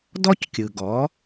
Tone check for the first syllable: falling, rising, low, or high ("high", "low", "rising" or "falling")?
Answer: high